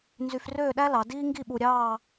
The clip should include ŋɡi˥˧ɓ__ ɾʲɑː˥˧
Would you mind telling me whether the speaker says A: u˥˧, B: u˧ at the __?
B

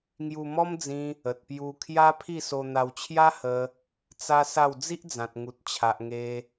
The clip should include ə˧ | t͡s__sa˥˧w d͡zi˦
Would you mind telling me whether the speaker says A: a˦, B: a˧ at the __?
A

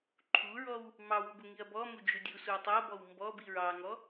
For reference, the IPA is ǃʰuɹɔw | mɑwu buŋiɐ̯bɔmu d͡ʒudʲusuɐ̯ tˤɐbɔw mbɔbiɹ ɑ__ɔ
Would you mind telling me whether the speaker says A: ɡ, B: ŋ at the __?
B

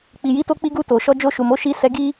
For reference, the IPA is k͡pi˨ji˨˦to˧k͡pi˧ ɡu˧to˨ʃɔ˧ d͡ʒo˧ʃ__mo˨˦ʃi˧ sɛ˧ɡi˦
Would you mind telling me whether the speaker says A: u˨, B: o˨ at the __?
A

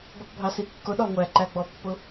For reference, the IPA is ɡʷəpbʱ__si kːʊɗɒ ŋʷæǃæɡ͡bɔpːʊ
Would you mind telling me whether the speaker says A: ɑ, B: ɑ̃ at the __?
A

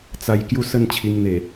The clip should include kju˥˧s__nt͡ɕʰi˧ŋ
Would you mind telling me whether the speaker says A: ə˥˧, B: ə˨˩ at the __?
A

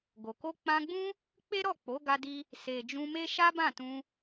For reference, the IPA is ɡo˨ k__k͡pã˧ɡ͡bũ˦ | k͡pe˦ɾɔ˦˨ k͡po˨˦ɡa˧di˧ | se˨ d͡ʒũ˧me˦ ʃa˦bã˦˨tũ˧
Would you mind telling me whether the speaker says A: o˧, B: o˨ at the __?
A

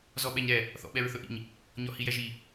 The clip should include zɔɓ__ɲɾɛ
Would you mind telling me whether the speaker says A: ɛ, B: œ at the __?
A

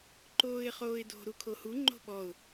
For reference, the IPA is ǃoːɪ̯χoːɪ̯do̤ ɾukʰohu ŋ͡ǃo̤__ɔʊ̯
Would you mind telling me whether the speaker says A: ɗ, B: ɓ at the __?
B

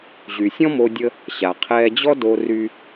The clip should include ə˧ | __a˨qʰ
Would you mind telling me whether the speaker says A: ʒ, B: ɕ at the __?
B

